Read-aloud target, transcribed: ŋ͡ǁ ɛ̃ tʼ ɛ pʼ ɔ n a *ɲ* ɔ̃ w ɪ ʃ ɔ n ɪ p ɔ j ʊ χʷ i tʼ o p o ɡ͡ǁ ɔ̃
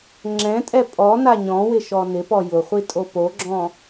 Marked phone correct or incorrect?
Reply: correct